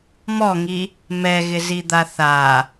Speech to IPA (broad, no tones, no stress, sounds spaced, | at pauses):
m ɔ ŋ i | m ɛ ɣ ɪ z i d̪ a θ a